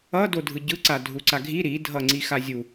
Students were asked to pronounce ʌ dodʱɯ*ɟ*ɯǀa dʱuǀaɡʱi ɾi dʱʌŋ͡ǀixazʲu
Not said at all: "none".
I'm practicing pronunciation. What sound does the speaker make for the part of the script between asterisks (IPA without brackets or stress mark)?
ɟ